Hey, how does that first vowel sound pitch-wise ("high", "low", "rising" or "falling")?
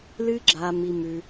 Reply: high